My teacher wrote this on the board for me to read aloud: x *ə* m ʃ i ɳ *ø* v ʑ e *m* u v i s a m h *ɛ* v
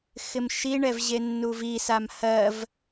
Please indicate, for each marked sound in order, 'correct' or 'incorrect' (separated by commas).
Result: incorrect, incorrect, incorrect, incorrect